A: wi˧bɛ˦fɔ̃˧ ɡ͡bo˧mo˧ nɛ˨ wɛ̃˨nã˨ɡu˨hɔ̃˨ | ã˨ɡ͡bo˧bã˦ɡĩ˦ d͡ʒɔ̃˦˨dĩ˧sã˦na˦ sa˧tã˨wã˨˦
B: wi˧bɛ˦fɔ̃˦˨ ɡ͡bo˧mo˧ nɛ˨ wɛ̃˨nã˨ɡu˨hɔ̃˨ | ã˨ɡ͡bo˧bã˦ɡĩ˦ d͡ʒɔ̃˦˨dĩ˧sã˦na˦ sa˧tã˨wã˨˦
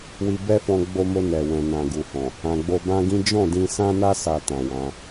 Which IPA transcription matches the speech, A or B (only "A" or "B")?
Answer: A